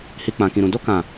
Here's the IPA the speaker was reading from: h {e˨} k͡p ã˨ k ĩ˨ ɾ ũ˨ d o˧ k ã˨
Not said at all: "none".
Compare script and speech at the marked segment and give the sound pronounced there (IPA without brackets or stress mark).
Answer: i˨